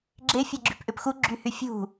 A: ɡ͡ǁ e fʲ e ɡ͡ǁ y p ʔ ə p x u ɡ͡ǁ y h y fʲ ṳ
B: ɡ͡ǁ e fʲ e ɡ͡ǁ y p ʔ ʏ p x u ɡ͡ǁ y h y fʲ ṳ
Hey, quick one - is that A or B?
B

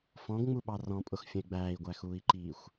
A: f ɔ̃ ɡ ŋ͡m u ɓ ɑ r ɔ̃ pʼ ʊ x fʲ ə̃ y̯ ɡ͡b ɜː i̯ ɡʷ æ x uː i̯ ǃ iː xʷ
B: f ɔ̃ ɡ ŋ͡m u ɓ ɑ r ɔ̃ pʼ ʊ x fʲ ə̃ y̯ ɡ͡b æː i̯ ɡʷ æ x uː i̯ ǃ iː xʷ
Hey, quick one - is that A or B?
B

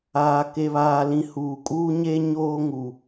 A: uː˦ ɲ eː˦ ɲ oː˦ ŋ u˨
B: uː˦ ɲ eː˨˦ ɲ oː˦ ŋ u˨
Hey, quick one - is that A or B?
A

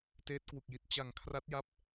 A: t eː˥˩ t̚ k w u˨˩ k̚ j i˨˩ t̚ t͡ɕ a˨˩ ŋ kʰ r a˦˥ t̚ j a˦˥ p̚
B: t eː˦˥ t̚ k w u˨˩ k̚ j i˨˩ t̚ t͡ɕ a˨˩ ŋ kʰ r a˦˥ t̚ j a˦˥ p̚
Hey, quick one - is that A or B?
B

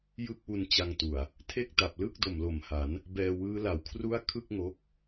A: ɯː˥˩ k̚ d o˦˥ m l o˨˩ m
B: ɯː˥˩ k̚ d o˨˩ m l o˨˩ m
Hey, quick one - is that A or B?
B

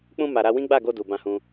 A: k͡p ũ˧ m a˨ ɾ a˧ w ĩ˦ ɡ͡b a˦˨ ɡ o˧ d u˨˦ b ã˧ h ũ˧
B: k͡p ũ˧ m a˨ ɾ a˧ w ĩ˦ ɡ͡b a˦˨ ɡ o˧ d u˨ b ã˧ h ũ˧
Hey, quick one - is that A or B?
B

